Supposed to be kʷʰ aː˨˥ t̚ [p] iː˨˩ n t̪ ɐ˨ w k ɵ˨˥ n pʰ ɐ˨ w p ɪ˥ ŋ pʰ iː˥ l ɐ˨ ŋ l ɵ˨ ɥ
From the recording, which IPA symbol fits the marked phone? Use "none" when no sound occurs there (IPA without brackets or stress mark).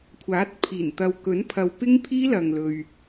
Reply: pʰ